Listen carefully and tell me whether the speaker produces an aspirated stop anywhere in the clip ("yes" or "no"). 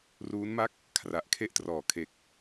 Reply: yes